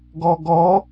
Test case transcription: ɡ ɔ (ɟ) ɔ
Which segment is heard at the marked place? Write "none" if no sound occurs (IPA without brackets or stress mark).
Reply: ɡ